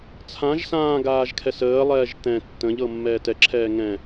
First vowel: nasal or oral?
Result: nasal